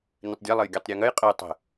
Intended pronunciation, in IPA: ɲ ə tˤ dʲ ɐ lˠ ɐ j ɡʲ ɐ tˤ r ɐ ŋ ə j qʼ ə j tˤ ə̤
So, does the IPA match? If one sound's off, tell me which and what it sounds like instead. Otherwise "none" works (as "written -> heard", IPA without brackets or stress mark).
r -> ɾʲ